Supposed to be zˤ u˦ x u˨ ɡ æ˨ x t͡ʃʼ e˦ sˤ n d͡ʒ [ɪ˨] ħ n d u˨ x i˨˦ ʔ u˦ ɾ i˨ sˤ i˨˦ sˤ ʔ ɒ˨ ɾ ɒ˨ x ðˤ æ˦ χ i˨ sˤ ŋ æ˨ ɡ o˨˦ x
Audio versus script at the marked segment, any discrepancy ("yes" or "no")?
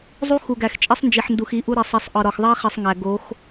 yes